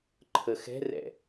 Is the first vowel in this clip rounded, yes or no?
no